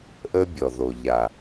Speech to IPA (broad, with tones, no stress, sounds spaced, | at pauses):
ʔ əː˦ bʲ ɔ˨ ð o˨ ʎ a˨